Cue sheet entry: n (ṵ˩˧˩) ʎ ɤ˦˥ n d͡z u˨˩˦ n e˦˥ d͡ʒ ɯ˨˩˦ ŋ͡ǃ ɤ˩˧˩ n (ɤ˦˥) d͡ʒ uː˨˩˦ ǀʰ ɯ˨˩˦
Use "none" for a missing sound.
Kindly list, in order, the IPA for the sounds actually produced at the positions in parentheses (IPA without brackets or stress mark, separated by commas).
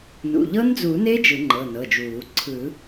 ṵ˩˧˩, ɤ˩˧˩